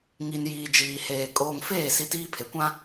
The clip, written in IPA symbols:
ŋi˨njiː˨ d͡ʒiː˨heː˨ kʼoː˨ŋfeː˦˨ si˦tiː˦pʰe˨kʷã˦

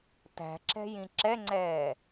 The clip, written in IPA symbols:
tæ̤ǁɛ̤jĩ ǁɛŋ͡ǀɛː

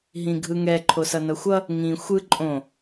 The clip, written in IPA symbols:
ɦĩɡʱɯŋɛ ǃʰosʌnʌxʷʌ | ŋĩ xʷɯ ǃʼõ

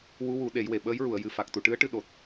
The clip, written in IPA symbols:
wu˧˥wu˨˩˦ ɗe˨˩˦jwe˨˩ ɓəː˧˥jɹu˨˩˨ə̯ jɨ˨˩fa˨˩k̚ t̪u˨˩˨ʈɨ˧˥ə̯ʈɨ˧ɗo˨˩t̚

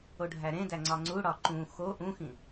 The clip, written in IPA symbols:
oɖʱæɾẽdæ ŋ͡ǀɒŋ͡ǀuɽɒ ǃũ xo ʔũxĩ

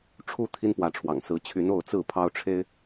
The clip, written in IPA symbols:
ʈ͡ʂʰu˨˦ t̪ʰi˦npwä˨˦ʈ͡ʂʰwɑ̰˨˩ŋ sɹ̩˨˦t͡ɕʰy˨˦n o˥˨ʊ̯t͡sɹ̩˥˨ pʰɑ˦ʊ̯ʈ͡ʂʰe˦ɪ̯

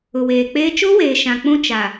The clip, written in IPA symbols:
ʊ˨weː˨k͡peː˦ t͡ʃo˦weː˨ ʃã˨k͡pũ˦ t͡ʃa˨

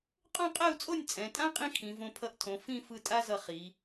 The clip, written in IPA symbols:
qʼõ˥˧qʼɛ˥˧u̯t͡sʼo˥˧nʲ t͡sʼɛ̃˩˧tʼã˥ qʼĩ˥kʰĩ˩˧võ˧ pʰʌ˧ʔtʰõ˩˧ fĩ˥˧fɯ˧ tʼa˥ zʌ˧ χi˩˧

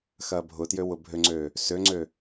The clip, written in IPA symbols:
xɐːbʱʊtjø wʊbʱøŋ͡ǀøː | søŋ͡ǀø

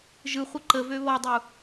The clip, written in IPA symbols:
ʒɯχʷɘ ǃəvø βɔdˤu

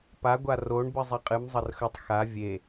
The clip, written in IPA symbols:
pa ɡʷaroɳ bɨzˤeqʼɨm zˤərxətˤ xa vʲe

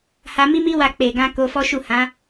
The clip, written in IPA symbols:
ha˧mi˦mi˦wa˧ k͡pe˨ ɡã˧ ko˧fɔ˦ʃu˦˨hã˨˦

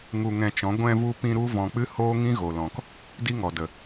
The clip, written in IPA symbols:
ŋu˧ŋɛ̃˧t͡ʃɔ̃˨˦ ɡʷɛ̃˧vu˧pĩ˧ ɾu˦vɔ̃˧k͡pɨ˦ hoː˦ŋĩ˦ɣo˨ lɔ̃˨k | di˦ŋɔ˨ də˨

